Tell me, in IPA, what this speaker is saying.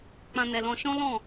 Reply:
k͡pã˦nɛ˧lɔ̃˦ ʃɔ̃˦lɔ̃˦˨

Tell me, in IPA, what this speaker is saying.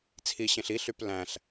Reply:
t͡sʰiɕẽɬ iɬyp læ̃ɬ

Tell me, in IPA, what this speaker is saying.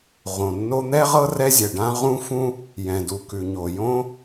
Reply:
ʁõ˩nːo˥ n̪ɛ˥ʁɤ˥ rɛ˥zʲɛ˩ɖã˥ ʁũ˥fũ˥ | jɛ̃˩du˩ kʉ˩ɲo˩jõ˥

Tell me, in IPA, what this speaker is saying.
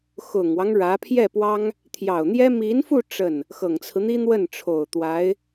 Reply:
xʊ˨˩ŋwɑ˦ŋ ɻä˧˥ pʰjɛ˥˩pwɑ˥ŋ | t̪ʰjɑ˨˩ʊ̯n̪jɛ˥ mi˧˥nfu˥˧ ʈ͡ʂə˥˩n | xɤ˨˩ŋt͡sʰɹ̩˦n̪i˥ n̪wə˥˩nʈ͡ʂʰo˨˩ʊ̯t̪wa˧˥ɪ̯

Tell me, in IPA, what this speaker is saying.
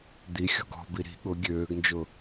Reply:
d̪i xʲɔ̤ɡɔ̤bi ɾi̤ ɠʊ ɡʲøːɡnd͡ʒʊ

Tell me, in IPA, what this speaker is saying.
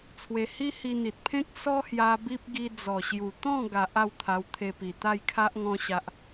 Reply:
t͡sʰwe˧ hi˦hi˧n̪i˨t̚pʰẽ˦k̚ sɔ˦hja˧ bi˦p̚ ɡi˧d͡zɔ˨˩ɕju˨˩ t̪ɔ̃˥˧ɡa˨ʔ a˥˧wt̪ʰa˧wt̪ʰe˧pi˨˩ t̪a˥˧jkʰa˦ʔŋɔ̃˧ɕa˨ʔ

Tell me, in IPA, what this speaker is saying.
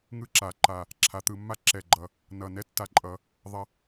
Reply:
ŋɯ˥ǁa˨˩˦ ǃa˧˩ | ǁʰa˨˩˦t̪ɯ˨˩˦mːa˥ ǁɛ˧˩ɡ͡ǃʌ˧˩ | nʌ˧˩ nɛ˥tːa˧˩ǃʼʌ˨˩˦ | ðˤɐ˥

